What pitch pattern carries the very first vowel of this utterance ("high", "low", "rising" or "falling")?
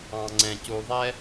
low